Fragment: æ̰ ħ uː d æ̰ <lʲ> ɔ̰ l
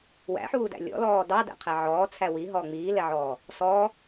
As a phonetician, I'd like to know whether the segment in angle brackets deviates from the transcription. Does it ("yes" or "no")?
no